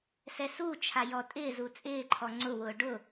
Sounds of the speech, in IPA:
sɛsut͡ʃʰa jɔtʼɪːzu t͡sʼɪːǃʰɔ ŋ͡ǀʊwʊː ɖʊ

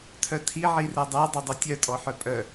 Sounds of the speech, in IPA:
tʰœtʰi ʕiredˤæ dˤɵdˤɵtʲœ tʼɔħœpʼœ

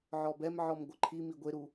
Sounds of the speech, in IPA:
ʕɔbɛmʕɔm ɡʷɯǃʰimi ɡʷeɾu

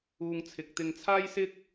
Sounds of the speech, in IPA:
uː˧ŋt͡sʰɪ˨k̚t̪ɪ˧ŋ t͡sʰaː˥jsɪ˥k̚

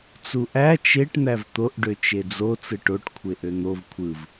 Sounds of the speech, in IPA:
t͡suʔæ t͡ʃeʈ n̪ævt̪oʔ ɖøt͡ʃed͡zo t͡sɯʈoʈ kʷʰeʔøn̪ov kʷʰɯv

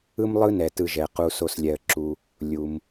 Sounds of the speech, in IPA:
ɯ˦mlˠɯ˦nɛ˩ tɯ˨ʒɛ˩qu˨ so˨s lʲɛ˩ə̯ǁu˩ | lʲu˩m

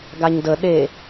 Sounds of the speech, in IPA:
ɡaɲdə ɗe

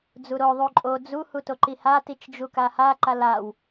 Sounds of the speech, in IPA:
d͡zuɾo ðˤuǃʼo d͡zu hutoǃiha tit͡ʃd͡ʒukaha ǃalaw

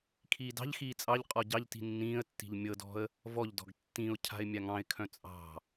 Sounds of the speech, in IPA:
kʰiːdɑ̤ʎxiː t͡sʼɑʎ qʼɔɟɑʎti̤ nːĩːə̯tːi̤ʎ mʲɤdɔ̤ə̯ | vɔʎdɔ̤ɡ tːĩʊ̯ cʰa̤ɪ̯mʲaŋɑ̃ɪ̯kʰœ̃ t͡sʼɑ̤

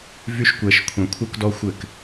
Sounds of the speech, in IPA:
vy˦ʃ kʷɛ˧ʃ kʷʰɛ̃˧kʷʰə˞˦kdɔ˦xʷɘ˦˨k

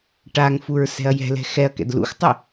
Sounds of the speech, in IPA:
ʈaŋfuɹ sɛ̤ɐ̯jɛ̤lɛ̤ xɛɐ̯kɛ̰d lṵxtˤɘ

